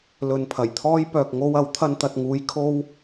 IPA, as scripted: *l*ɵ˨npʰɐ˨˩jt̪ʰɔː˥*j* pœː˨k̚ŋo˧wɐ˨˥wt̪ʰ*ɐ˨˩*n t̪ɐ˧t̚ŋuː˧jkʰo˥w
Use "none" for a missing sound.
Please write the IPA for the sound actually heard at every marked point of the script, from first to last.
l, j, ɐ˧

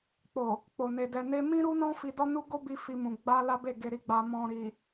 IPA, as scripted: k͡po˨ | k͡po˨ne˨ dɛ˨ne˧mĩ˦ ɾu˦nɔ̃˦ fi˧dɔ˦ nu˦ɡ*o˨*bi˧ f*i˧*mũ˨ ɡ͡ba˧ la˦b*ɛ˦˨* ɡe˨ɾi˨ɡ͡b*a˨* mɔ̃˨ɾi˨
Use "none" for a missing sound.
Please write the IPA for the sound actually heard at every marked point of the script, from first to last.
o˦, i˧, e˦˨, a˨

